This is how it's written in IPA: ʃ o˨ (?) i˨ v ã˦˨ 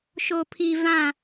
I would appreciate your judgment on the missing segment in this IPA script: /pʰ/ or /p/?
pʰ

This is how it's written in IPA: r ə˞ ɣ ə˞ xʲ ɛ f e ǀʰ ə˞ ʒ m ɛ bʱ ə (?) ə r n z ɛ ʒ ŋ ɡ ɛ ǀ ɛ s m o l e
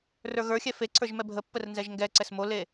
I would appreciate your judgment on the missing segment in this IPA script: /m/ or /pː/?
pː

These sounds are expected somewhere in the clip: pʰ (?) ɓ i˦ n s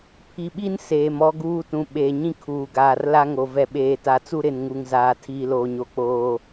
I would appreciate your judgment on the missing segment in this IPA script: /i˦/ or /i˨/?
i˨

